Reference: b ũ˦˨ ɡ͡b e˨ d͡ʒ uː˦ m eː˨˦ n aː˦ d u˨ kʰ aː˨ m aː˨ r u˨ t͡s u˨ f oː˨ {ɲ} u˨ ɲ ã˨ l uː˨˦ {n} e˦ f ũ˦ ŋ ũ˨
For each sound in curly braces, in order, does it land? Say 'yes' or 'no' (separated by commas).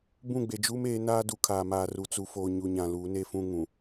yes, yes